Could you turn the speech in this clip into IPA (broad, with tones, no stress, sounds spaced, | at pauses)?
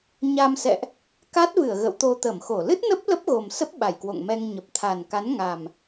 ɲ a˧ m s ɛ̰˧˨ ʔ | k a˦˥ t̚ v ɨ˧˩ ə̯ ɣ ə̰˧˨ w t̪ o˧ t̪ ə˧˩ m x o˧˩ l ɨ˦˥ t̚ n ə˦˥ p̚ l ə˦˥ p̚ ɣ o˨˩ m s ə˦˥ p̚ ɓ a˧˩ j k w o̰˧˨ ŋ m ɛ˧ ŋ ɲ ə˨˩ p̚ t̪ʰ a˨˩ n k a˨˦ n ŋ a˨˩ m